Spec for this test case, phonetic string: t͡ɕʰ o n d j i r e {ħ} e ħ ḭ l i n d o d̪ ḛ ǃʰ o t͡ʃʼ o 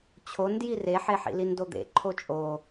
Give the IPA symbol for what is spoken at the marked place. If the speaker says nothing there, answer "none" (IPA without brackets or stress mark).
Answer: ħ